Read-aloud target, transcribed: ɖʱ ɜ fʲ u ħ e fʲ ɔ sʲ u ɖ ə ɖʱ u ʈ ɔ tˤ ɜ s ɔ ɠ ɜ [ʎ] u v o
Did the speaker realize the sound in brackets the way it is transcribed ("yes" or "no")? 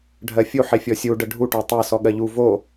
yes